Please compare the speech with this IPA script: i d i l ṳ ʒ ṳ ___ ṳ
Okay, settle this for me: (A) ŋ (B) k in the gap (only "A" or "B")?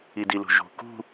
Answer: B